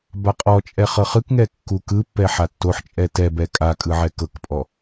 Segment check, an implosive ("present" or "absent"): absent